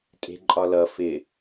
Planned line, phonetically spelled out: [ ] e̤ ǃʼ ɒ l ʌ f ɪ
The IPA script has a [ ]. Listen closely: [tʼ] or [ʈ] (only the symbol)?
tʼ